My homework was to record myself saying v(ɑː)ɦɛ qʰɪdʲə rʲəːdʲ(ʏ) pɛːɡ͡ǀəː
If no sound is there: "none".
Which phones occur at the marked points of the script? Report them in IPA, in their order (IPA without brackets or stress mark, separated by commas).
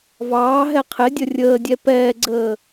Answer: ɑː, ɛ